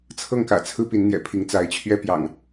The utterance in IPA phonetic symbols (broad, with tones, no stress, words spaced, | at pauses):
t͡sʰɤ˥˨ŋkä̰˨˩t͡sʰɹ̩˦ pi˨˦nn̪jɛ̰˨˩pʰi˨˦ŋt͡sa˨˦ɪ̯ t͡ɕʰɥɛ˦pjɑ̰˨˩ŋ